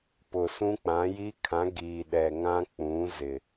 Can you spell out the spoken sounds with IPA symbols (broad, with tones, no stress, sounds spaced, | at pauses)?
p ʊ˨ s ũ˦ k͡p ã˨˦ j i˦ kʰ ã˨˦ ɡ iː˨ ɗ ɛ˨ ŋ ã˦ k͡p ũ˨˦ z ɪ˨